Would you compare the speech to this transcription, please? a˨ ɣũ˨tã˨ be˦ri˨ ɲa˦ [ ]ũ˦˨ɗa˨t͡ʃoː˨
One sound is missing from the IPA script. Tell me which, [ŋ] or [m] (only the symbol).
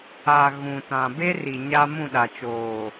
m